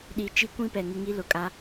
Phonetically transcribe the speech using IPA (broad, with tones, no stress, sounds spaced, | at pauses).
ɗ i˦ t͡ʃ i˦ kʷ ĩ˦ p ɛ˨ ŋ ɪ˦ ŋ i˦ l ʊ˨ kʼ a˦